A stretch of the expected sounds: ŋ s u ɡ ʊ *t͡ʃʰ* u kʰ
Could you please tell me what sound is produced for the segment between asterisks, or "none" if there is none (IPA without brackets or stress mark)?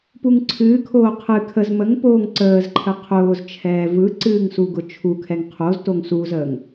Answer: t͡ʃʰ